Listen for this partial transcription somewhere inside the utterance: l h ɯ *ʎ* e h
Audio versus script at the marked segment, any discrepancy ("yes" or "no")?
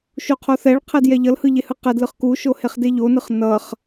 no